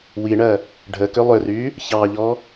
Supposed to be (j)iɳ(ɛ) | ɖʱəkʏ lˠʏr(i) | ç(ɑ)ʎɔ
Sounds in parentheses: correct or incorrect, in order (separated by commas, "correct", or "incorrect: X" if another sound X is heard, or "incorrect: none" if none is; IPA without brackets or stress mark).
incorrect: w, incorrect: ɜ, incorrect: y, correct